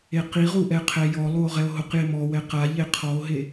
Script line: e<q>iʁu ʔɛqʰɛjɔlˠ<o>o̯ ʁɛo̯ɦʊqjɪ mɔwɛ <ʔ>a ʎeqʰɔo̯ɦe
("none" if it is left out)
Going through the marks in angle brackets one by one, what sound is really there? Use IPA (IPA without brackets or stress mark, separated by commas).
q, u, q